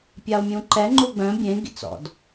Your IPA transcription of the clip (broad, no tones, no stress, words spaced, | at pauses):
pʲao̯mʲũǃɛ ŋ͡ǃuɡ͡bœ̃ bʲẽ ɡḭt͡sɔ̰d